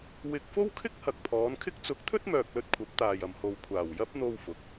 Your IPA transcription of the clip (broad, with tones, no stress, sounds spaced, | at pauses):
w ɪ˧ k̚ f o˥ w kʰ ɪ˥ k̚ h ɐ˨ k̚ pʰ ɔː˨˧ n kʰ ɪ˥ k̚ t͡s ʊ˨˥ k̚ t̪ʰ ɵ˥ t̚ m œː˨ k̚ l ɵ˧ t̚ kʷʰ ɐ˨˥ p̚ t̪ aː˨ j ɐ˨ m h o˨ w kʷʰ aː˨˩ w j ɐ˥ p̚ n̪ o˥ w f ʊ˨˥ k̚